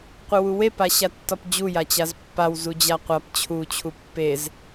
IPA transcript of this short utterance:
qʷ ɨ w u w e p a ɕ a tː ɒ p d͡ʑ u j a t͡ɕ a z pː a w z u d͡ʑ a qʷ a p t͡ɕʰ u t͡ɕʰ u pː e z

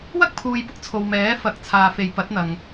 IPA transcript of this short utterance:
w ɐ˥ k̚ pʰ uː˨ j p ʊ˥ k̚ t͡sʰ o˨ w m ɛː˨˥ f ɐ˨˥ k̚ t͡sʰ aː˨ f e˨˧ j p ɐ˨˥ t̚ n̪ ɐ˨ ŋ

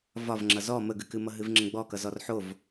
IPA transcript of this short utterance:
v ɒ v ŋ͡ǁ ʌ z ɔ m ə ɡ ɨ k ɨ m ʌ ɦ ɨ v ŋ͡ǁ ə̃ ɡ͡b ɔ k ʌ z ɔ r ħ o v

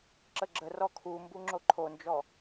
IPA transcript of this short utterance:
ǁ ə ɡ͡ǁ ə r ɔ kʰ u m b u ŋ͡ǁ o ǃʰ o n d͡ʒ ɔ

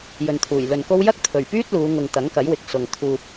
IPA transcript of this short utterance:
j ɵ˨ n t̪ʰ uː˨˩ j l ɵ˨ n k o˥ w j ɐ˥ k̚ t̪ʰ ɵ˨˩ ɥ p yː˥ t̚ l uː˨˧ ŋ ʊ˨ ŋ t̪ ɐ˨˥ ŋ k ɐ˨˥ j w ɪ˨˥ k̚ s ʊ˨ ŋ t̪ʰ uː˧ p̚

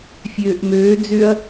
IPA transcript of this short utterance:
fʲ øː ʔ m øː d͡z ʏ ɐ̯

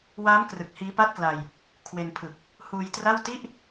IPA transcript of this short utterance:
w a˦˥ m k r ɯ˨˩ k̚ h iː˦˥ p a˥˩ t̚ k l a˧ j | kʰ w e˧ n pʰ ɯ˨˩ k̚ | h uː˧ j t r a˥˩ w t i˥˩ ʔ

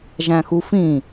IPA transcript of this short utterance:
ʒ æ̃ x u f ĩ

